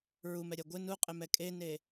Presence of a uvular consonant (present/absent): present